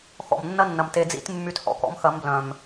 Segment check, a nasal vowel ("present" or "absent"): present